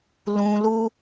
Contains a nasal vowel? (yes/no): yes